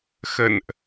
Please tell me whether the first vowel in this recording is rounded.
no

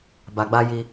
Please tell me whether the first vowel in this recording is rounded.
no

